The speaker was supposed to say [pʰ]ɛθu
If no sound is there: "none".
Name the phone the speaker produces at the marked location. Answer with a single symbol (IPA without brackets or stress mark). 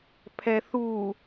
pʰ